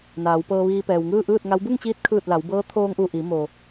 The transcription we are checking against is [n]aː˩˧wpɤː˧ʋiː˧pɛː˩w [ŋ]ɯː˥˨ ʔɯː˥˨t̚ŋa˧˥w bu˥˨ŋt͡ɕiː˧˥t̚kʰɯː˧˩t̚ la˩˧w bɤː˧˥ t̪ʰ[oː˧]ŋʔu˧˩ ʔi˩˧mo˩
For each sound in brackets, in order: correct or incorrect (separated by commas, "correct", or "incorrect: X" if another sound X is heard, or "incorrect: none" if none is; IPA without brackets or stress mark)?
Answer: correct, correct, correct